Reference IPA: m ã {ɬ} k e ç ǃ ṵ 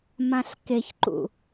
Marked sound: correct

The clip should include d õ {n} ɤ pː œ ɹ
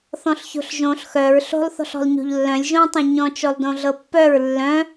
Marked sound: incorrect: ɮ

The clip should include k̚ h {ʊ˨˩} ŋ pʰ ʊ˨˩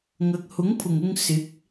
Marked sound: incorrect: ʊ˨˥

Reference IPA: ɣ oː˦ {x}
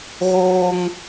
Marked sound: incorrect: ŋ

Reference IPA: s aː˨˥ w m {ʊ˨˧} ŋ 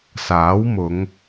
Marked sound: correct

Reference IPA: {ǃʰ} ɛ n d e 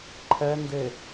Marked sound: correct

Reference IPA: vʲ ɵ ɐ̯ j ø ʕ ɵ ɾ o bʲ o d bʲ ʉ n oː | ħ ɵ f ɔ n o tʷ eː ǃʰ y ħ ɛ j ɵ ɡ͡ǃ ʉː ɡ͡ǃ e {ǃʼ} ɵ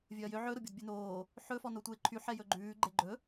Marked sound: incorrect: ɡ͡ǃ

